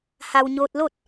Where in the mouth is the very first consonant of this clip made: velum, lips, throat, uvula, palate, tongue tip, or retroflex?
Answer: throat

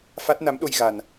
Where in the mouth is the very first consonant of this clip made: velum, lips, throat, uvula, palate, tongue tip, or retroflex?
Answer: lips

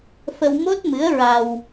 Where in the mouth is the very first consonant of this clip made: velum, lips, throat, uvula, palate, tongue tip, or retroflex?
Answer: lips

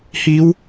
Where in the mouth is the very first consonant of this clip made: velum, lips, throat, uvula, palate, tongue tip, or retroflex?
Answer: throat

